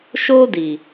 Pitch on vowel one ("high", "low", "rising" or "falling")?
high